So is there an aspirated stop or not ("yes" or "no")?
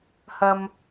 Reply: no